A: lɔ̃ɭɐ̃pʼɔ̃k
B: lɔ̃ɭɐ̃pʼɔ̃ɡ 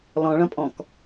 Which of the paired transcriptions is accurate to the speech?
A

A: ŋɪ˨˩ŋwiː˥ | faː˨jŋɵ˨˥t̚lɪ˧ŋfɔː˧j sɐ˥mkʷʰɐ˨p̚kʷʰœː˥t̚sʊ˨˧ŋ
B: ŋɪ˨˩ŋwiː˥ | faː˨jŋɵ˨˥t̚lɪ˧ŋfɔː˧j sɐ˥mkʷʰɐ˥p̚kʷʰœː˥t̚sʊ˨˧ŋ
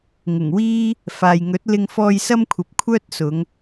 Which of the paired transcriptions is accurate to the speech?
A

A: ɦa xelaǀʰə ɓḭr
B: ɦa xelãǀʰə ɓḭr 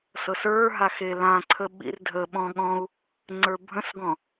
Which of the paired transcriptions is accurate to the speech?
B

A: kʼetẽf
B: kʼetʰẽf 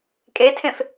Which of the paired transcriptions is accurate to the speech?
B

